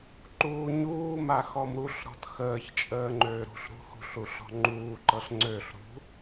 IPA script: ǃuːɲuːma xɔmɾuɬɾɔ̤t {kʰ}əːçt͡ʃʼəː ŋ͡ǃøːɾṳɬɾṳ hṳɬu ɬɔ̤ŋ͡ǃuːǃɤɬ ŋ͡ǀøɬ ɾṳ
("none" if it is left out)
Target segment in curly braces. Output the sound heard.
x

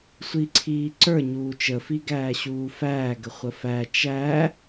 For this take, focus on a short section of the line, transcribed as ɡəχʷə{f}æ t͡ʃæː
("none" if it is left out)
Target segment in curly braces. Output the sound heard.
f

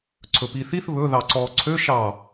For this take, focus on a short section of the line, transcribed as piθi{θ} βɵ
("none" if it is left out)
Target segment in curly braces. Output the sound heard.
θ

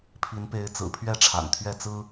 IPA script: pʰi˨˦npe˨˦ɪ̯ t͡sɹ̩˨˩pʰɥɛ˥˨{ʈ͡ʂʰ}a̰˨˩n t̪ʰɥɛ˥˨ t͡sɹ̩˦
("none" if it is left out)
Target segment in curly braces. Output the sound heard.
ʈ͡ʂʰ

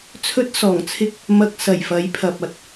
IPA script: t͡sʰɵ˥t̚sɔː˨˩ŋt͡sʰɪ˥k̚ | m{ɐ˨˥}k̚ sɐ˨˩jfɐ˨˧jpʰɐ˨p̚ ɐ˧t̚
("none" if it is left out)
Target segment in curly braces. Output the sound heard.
ɐ˧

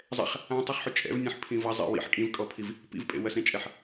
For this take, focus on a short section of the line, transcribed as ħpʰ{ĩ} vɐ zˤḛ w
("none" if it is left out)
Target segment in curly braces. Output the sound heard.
ĩ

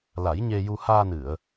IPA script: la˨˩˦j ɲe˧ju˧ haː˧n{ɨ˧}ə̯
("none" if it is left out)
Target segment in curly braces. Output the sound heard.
ɨ˨˩˨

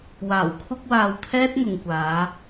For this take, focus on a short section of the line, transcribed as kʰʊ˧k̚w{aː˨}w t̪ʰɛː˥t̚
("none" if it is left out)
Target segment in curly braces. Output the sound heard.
aː˨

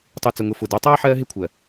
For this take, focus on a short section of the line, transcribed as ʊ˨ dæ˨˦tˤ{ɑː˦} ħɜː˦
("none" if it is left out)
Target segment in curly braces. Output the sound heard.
ɑː˦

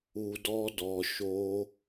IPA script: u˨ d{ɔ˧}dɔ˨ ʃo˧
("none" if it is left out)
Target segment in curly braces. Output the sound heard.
ɔ˧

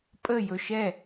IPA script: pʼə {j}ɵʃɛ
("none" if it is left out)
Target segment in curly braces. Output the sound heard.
j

